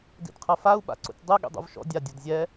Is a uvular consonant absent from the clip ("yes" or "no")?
no